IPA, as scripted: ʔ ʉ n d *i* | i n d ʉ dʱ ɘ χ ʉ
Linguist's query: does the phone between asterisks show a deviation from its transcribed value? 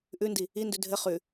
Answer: no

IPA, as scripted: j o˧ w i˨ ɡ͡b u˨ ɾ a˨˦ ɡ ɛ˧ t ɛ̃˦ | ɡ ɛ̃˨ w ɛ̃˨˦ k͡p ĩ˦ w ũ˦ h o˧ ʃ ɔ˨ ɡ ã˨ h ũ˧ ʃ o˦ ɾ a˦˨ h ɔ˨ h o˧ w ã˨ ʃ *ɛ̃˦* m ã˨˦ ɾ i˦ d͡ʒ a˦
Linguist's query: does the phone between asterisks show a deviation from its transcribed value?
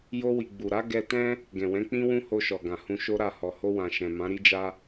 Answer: yes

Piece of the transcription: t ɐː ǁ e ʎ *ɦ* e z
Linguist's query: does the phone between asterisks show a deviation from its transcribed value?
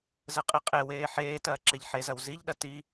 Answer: yes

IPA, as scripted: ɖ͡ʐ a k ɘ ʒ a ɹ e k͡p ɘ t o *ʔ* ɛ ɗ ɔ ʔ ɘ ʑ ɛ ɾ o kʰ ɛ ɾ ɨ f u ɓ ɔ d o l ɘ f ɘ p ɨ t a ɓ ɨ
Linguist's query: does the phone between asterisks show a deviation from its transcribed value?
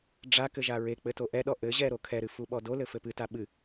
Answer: no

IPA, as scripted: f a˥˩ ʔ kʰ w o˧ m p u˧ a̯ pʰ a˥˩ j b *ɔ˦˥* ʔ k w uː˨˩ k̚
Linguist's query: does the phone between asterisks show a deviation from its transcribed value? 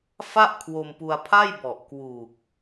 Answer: yes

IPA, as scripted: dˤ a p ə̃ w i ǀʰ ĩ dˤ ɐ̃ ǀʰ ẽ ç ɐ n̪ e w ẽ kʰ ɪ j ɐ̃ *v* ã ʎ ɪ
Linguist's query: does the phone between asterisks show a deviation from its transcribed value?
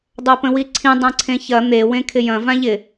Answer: no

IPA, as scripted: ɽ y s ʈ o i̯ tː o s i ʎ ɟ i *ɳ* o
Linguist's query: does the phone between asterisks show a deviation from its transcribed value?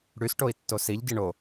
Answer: no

